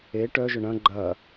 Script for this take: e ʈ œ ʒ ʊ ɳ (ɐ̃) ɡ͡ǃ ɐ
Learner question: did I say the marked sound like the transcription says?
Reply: yes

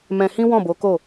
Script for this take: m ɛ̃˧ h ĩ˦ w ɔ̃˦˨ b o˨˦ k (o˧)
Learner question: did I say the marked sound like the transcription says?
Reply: no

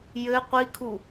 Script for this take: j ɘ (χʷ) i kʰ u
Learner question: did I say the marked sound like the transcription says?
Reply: no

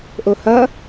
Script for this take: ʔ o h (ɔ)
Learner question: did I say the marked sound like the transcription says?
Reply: no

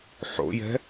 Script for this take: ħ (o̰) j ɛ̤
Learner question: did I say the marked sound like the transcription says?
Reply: yes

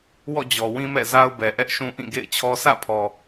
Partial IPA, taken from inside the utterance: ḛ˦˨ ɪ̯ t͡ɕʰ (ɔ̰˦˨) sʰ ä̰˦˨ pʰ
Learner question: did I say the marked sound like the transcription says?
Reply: no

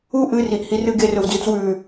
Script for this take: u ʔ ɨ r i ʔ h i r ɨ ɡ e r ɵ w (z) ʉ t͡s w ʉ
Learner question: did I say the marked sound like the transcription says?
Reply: no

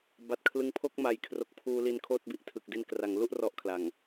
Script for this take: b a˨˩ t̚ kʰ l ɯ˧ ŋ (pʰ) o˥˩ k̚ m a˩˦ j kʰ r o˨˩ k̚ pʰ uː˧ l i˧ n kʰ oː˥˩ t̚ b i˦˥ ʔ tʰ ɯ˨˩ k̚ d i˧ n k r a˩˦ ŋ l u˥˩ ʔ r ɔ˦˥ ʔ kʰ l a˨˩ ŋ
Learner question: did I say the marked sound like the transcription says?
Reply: yes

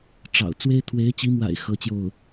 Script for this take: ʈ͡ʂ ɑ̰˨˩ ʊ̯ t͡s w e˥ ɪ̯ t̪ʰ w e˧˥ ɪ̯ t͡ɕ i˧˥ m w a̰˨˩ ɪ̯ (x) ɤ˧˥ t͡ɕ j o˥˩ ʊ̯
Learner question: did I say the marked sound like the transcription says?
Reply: yes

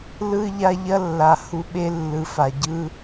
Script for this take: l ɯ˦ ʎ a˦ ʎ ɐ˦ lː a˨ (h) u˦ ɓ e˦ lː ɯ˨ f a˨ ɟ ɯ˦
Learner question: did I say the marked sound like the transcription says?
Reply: yes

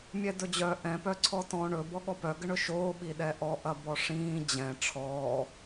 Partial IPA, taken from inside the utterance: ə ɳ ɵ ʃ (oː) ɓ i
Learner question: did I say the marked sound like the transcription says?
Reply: yes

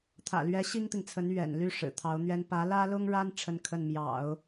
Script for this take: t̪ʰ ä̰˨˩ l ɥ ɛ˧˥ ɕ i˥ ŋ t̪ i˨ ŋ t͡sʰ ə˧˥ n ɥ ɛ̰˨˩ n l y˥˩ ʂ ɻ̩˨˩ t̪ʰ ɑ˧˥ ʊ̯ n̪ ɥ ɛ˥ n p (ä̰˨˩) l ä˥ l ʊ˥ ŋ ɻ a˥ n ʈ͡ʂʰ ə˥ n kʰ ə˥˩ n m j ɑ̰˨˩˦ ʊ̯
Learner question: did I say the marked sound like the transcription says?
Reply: no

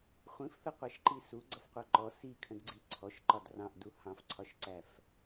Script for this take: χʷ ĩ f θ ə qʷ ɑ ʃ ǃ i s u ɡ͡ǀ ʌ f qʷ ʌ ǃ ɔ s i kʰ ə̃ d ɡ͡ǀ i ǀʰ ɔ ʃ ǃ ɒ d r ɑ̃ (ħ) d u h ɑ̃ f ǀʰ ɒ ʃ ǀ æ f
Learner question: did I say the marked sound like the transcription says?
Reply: no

